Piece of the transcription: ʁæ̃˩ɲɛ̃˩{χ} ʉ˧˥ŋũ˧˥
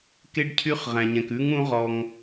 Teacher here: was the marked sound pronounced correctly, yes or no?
no